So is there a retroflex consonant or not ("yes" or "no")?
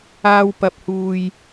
no